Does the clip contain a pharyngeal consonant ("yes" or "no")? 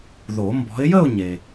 no